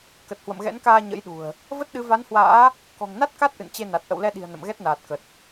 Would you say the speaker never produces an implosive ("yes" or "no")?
no